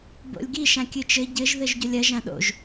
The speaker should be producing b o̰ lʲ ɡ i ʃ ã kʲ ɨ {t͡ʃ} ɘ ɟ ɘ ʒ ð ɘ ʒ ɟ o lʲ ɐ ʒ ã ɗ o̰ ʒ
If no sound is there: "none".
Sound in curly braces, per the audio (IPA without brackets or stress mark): t͡ʃ